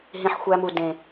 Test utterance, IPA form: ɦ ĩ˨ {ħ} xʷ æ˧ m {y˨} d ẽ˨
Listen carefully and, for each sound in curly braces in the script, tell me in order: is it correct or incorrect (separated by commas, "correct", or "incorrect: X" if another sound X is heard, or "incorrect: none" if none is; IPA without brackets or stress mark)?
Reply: correct, incorrect: u˨